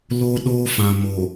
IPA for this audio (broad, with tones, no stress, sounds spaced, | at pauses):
l o˦ ɗ oː˦ f ã˨ m o˨